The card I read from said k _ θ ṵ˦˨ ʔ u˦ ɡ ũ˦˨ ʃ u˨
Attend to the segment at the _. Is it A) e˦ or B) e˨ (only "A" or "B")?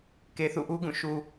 B